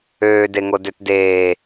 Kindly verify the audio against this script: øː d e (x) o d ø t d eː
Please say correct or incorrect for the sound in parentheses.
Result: incorrect: ŋ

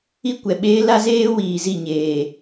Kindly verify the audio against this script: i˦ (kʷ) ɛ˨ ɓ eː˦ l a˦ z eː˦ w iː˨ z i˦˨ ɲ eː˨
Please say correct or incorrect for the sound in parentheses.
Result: correct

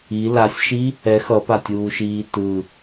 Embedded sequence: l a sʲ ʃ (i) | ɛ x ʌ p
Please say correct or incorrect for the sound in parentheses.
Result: correct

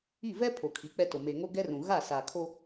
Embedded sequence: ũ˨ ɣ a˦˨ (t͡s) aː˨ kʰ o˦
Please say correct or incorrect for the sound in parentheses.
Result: incorrect: s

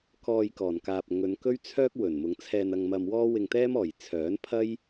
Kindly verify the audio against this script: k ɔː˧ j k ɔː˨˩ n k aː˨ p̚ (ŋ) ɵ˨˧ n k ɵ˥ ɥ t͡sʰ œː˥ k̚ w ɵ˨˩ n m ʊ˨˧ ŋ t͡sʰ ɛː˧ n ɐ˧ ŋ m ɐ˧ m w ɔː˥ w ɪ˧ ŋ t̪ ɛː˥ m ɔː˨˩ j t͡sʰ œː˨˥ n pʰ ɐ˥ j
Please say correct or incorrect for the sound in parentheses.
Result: correct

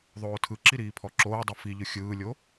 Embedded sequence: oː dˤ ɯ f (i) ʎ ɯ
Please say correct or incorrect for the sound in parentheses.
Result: correct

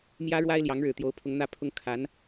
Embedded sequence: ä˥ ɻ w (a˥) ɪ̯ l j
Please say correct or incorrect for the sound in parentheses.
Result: correct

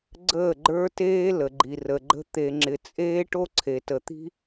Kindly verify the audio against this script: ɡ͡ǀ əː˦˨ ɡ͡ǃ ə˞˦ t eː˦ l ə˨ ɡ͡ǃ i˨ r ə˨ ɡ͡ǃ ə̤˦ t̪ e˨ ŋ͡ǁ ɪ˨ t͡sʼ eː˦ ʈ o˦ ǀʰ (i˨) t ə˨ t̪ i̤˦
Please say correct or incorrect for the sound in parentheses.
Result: incorrect: e˨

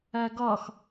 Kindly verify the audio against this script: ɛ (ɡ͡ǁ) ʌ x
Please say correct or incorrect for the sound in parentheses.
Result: incorrect: ɡ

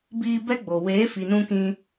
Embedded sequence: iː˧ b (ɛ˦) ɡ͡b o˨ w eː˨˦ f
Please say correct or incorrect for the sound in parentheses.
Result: correct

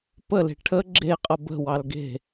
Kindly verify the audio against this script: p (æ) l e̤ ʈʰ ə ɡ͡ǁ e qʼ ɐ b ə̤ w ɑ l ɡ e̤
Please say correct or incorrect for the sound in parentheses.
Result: incorrect: ə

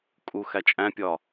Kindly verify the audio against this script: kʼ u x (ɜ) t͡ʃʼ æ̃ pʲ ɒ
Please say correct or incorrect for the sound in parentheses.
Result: incorrect: æ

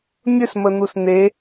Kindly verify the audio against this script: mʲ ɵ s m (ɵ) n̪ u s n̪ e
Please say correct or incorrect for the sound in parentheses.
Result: incorrect: ə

